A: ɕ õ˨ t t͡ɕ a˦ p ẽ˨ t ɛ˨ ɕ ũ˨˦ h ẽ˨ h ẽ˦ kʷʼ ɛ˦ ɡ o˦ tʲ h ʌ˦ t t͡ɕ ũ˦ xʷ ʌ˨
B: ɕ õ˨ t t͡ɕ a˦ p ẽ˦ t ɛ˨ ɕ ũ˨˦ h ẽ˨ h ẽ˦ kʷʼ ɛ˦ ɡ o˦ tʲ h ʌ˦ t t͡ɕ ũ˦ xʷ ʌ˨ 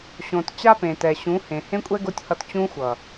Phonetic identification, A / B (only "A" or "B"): A